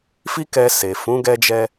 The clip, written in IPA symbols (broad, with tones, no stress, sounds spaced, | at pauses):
f i˦ k ɛ˧ s e˨ f ũ˨˦ ɡ ɛ˧ d͡ʒ ɛ˧